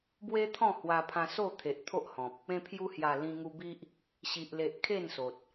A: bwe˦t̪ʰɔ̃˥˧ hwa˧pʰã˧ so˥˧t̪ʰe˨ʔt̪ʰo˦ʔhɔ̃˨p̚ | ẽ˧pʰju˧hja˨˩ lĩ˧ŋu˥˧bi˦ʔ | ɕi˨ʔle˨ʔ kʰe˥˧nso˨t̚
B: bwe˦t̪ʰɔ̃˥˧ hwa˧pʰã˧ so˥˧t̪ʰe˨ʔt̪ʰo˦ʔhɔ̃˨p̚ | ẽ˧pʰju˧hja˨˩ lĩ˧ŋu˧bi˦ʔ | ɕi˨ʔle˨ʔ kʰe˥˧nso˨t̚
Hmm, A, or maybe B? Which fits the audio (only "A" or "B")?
B